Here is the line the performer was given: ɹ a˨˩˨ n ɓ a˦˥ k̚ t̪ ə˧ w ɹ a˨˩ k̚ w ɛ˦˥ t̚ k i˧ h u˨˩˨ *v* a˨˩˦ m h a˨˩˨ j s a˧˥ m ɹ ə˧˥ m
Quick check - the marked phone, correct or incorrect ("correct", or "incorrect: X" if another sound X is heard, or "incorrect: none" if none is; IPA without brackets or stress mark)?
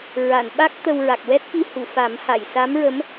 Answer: incorrect: f